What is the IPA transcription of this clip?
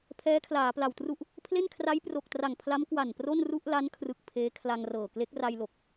pʰɛː˦˥kʰlaː˩˦pla˨˩wtru˥˩ʔ | pʰle˥˩nkʰra˦˥jpro˨˩k̚tra˨˩ŋ pʰla˦˥mkwa˨˩npro˥˩nru˥˩ʔ la˦˥nkʰrɯ˨˩k̚ pʰeː˦˥kʰla˧ŋrɤː˨˩ kle˦˥k̚ra˧jlo˨˩k̚

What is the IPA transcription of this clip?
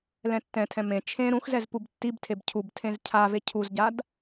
lɛ̃tːɛ̃tʰɛ̃ mẽ t͡ʃʰẽ ɾũxzɛz pubtːibtʰeb cʰubtʰẽz cʰave cʰuzɟad

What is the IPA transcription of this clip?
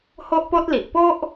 ho˦ʔpo˦t̚li˨ʔ po˦ʔ

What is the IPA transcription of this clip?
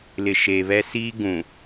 lɪ˨ʃe˨βɛ˦siː˦ ɡũ˨

